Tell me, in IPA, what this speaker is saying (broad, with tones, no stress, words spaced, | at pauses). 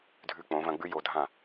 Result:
dʱʉ˧k͡põ˨˦vɐ̃˧ɡ͡bʉ˦ jo˧dʱã˦˨